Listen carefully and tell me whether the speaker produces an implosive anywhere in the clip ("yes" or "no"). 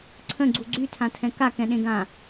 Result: yes